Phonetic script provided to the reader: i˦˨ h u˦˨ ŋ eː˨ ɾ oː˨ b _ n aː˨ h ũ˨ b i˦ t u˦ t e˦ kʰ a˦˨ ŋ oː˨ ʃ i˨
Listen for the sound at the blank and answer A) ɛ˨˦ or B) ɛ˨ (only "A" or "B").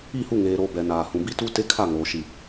B